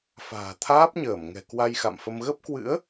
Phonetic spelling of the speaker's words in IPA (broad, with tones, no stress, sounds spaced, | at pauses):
f a̤ː˨˩ t̪ʰ aː˦˥ p̚ ɲ əː˧˩ m ŋ ɛ̤˨˩ k w a˧ j x a̰˧˨ m f ə˧ m ɣ ə˦˥ p̚ k w ɨ̰˧˥ ə̯